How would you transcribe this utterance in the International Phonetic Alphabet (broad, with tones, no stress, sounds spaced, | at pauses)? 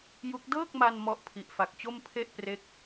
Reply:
j u˦˥ k̚ d ɤː˥˩ k̚ m a˧ n m ɔ˦˥ ʔ pʰ i˨˩ ʔ f a˨˩ k̚ t͡ɕ o˥˩ m pʰ e˥˩ ʔ p r e˥˩ k̚